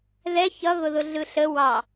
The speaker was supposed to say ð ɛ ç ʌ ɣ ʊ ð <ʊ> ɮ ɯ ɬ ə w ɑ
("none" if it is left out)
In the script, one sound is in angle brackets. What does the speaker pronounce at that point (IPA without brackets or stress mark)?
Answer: ʊ